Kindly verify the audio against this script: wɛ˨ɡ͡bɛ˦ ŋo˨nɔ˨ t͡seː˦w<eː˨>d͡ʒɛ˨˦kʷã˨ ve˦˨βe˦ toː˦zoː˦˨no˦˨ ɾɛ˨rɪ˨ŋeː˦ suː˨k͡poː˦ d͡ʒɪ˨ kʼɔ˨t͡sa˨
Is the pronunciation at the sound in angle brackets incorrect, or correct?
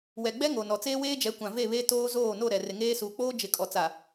incorrect